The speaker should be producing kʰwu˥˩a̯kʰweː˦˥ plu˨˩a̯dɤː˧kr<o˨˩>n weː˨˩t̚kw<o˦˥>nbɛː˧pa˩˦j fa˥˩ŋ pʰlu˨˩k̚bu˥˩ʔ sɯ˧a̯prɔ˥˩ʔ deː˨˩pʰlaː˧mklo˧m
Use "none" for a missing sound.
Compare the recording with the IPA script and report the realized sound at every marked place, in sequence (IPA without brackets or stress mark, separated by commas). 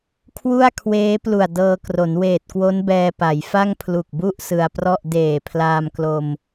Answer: o˩˦, o˦˥